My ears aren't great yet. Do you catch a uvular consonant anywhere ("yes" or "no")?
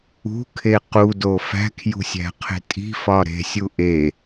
yes